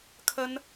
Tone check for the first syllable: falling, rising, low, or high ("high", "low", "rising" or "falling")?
high